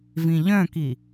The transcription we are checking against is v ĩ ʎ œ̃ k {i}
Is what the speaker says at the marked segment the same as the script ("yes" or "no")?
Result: yes